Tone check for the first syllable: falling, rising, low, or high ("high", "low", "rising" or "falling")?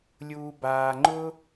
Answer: low